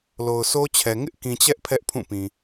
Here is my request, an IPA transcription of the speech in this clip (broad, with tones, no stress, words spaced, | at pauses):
lo˨ʊ̯so˦t͡ɕʰɛ˨ ŋɪ˦ʔkĩ˨t͡ɕɛ˦ʔ pʰɛ˦ʔpʰũ˦˨pĩ˨